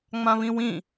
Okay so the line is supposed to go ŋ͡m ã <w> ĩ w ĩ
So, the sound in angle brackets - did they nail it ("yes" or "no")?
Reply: no